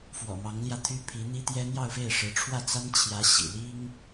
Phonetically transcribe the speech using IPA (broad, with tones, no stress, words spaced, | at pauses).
fwɔ̰˨˩mɑ˧˥ŋljä˧t̪ʰy˥ pʰi˧˥n̪i˥t̪jɛ˥ n̪jɑ˥˧ʊ̯fe˥˩ɪ̯ʂɻ̩˧˥ ʈ͡ʂʰwä˥˩t͡sa˥nt͡ɕʰjä˧˥ ɕḭ˨˩li˥ŋ